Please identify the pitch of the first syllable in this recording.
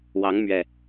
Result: rising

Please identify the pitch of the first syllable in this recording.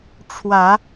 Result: rising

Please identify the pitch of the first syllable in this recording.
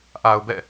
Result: low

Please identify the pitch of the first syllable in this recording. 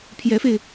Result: rising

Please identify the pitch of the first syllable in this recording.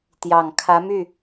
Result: low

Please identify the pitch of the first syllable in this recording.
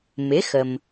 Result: rising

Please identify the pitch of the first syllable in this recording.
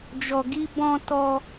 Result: low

